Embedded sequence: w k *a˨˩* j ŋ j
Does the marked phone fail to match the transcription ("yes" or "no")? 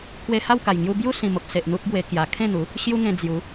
no